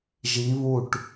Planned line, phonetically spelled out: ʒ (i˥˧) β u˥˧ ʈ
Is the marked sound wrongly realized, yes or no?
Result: yes